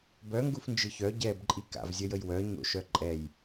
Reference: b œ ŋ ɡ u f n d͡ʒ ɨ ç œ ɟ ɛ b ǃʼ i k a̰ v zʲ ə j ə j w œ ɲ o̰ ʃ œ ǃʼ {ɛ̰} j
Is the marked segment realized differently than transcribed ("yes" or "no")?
yes